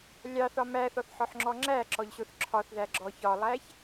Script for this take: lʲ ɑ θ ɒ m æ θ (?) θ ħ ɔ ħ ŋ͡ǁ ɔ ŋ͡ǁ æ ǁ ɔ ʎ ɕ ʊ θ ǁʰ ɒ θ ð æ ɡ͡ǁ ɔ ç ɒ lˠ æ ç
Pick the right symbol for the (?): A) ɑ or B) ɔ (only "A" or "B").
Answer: B